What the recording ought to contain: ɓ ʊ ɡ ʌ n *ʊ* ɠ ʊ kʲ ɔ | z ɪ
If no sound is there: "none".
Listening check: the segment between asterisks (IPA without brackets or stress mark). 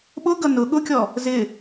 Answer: ʊ